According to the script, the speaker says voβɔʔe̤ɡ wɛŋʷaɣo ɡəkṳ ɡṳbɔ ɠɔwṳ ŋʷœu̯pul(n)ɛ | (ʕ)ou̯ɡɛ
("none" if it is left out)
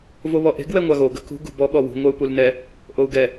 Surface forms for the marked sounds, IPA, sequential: n, ʔ

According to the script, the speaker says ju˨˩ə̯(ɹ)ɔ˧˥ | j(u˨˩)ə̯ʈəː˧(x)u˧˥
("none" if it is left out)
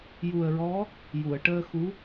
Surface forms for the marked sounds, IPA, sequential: ɹ, u˨˩˨, x

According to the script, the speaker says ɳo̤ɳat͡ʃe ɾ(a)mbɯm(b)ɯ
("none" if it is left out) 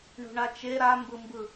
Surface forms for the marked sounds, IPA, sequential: a, b

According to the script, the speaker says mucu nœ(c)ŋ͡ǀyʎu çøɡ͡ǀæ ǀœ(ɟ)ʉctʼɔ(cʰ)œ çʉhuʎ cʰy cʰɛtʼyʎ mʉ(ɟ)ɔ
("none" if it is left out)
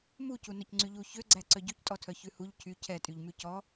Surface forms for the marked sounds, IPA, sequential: c, ɟ, tʰ, c

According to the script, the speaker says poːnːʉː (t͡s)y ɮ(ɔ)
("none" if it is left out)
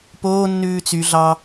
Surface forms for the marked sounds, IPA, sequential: t͡s, ɑ

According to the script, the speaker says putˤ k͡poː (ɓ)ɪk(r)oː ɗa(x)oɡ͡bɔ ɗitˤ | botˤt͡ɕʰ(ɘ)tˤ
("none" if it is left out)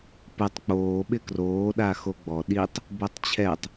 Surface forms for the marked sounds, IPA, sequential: ɓ, r, x, ɛ

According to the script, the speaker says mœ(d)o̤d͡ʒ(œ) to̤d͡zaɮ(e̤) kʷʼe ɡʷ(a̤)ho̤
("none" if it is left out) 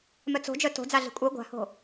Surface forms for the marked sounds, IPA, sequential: t͡s, œ, e̤, a̤

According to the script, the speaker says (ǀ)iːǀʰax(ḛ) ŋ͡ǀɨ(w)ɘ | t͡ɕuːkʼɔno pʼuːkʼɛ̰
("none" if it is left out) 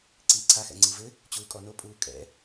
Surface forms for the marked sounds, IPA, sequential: ǀ, ɛ̰, v

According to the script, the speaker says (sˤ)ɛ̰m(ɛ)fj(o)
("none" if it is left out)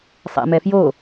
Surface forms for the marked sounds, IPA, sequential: sˤ, ɛ, o

